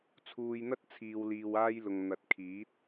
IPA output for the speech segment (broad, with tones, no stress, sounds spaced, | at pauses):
t͡sʰ uː˨ j n̪ ɐ˧ t̚ t͡sʰ iː˨ w l iː˨ w aː˧ j l ʊ˨ ŋ n̪ ɐ˨˥ t̚ kʰ iː˨˥ t̚